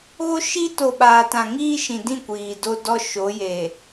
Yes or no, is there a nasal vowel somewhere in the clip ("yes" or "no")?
yes